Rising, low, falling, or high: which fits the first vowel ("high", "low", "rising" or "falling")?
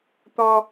high